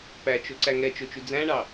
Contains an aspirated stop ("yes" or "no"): no